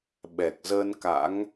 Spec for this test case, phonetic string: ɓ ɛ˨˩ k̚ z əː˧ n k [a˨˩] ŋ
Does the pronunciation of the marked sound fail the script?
yes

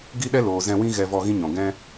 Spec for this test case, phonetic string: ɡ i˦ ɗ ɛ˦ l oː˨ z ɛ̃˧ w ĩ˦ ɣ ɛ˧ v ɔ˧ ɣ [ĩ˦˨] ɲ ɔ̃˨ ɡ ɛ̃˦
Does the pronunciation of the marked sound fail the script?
yes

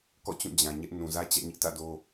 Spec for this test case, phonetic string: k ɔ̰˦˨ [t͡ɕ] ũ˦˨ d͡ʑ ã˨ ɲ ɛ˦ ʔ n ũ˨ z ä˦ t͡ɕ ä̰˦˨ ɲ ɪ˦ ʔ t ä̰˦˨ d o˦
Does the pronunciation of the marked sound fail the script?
no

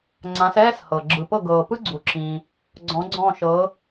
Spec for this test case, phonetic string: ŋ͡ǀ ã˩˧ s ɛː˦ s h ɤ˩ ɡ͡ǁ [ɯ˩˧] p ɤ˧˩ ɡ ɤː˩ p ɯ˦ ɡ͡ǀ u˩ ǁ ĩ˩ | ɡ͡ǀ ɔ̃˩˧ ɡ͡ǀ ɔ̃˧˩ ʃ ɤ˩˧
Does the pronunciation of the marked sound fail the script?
yes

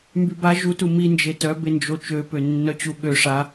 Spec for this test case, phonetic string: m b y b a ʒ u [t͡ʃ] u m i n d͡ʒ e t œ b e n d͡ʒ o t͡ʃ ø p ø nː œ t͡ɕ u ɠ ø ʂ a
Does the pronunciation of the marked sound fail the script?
yes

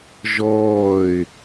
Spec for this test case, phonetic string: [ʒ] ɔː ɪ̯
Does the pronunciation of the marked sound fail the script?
no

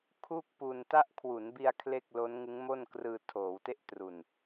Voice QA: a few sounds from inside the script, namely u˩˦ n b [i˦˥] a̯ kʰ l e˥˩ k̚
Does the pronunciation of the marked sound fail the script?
yes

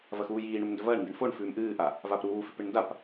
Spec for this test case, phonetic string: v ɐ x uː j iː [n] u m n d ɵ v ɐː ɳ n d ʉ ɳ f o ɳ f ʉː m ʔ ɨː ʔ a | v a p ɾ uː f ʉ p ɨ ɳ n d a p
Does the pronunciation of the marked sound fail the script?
yes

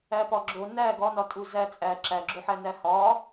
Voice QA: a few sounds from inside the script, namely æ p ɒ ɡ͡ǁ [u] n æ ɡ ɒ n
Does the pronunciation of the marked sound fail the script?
yes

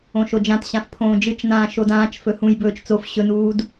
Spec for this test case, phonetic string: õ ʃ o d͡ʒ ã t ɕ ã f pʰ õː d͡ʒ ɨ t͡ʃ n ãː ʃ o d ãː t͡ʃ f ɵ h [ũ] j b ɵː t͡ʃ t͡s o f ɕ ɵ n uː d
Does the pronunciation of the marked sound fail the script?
no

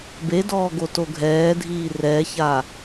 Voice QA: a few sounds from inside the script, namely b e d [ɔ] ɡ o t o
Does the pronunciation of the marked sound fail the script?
yes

